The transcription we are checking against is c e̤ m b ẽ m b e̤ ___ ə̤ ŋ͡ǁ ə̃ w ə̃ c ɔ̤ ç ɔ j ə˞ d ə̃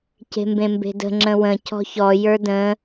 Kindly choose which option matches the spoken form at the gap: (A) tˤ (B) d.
B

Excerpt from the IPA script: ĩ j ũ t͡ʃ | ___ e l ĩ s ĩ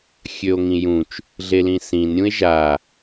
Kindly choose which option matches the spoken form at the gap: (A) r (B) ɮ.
B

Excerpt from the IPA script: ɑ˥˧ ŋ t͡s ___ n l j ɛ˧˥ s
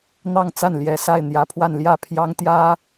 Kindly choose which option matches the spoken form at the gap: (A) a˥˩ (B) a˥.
A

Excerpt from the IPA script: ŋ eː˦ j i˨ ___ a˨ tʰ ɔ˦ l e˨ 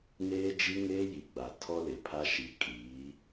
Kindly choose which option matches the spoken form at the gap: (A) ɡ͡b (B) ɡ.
A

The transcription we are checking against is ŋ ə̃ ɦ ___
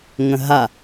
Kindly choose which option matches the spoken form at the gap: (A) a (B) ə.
A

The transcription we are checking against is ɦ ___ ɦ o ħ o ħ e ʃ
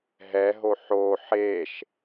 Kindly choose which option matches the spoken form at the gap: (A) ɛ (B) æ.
A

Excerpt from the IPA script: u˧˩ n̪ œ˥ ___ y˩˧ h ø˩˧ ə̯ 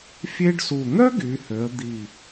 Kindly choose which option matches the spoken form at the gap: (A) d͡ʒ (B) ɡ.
B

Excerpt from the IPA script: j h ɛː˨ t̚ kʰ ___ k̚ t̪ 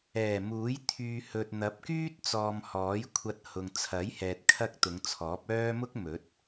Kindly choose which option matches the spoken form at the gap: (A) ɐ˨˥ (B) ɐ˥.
B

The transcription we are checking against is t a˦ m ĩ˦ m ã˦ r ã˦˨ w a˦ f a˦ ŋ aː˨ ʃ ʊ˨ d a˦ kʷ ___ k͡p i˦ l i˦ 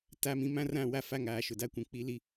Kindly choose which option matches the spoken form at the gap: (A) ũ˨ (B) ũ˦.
A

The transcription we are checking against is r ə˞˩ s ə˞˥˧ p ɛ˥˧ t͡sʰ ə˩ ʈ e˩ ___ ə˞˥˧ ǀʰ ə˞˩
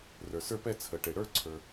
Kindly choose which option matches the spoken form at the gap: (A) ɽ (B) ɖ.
A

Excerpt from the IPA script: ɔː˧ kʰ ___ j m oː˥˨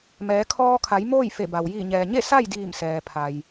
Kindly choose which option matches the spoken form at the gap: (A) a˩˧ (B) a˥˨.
A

